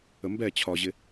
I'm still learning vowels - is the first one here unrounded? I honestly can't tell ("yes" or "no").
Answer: yes